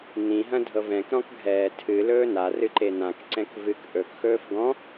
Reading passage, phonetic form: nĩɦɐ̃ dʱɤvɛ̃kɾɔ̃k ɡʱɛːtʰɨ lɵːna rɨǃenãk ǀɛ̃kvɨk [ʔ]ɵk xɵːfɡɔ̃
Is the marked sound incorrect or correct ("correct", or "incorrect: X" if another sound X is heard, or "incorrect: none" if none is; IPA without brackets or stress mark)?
correct